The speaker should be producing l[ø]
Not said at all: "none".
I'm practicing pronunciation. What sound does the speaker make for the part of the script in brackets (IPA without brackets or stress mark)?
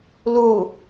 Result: u